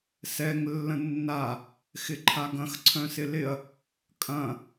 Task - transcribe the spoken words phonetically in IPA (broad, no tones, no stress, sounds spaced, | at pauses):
s ɛ ŋ lː ə̃ nː a | x ɪ ǃʰ a ɡ ɐ̃ x ǀʰ œ̃ s ɪ l ɪ ɐ̯ | kʼ ɐ̃